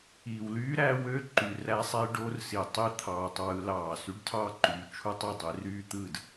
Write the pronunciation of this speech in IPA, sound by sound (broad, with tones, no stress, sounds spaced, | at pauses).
i˨ w l yː˦ ɾ æ˦ w ø˦ ǃ y˨ r æ˦ sˤ e˦ ɖ o˦ r s i˨ tˤ i˦ t̪ʰ ɑː˨ tˤ w ɯ˦ l ɑː˦˨ s y˦ ɖ tʰ ɑː˦ ǃ yː˨ t͡ʃʰ u˦ tˤ i˦˨ dˤ e˨˦ r yː˦ t̪ ɯ˦˨ d